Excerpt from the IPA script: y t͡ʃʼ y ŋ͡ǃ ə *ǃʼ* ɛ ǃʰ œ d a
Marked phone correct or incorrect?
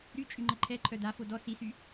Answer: incorrect